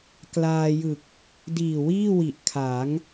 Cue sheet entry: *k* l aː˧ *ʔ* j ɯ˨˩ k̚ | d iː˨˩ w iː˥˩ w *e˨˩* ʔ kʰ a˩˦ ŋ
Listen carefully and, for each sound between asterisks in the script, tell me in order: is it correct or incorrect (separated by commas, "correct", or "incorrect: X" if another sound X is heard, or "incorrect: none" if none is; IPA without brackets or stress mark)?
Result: correct, incorrect: none, incorrect: i˨˩